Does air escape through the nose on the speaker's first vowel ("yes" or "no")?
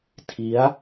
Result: no